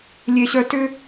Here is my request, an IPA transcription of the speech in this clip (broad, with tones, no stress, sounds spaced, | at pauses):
lʲ e˦ ɕ œ˦ t ʏ˦